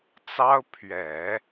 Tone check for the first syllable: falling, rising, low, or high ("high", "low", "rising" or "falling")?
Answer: high